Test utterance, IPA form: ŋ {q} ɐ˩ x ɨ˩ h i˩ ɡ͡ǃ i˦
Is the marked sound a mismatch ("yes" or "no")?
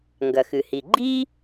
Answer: yes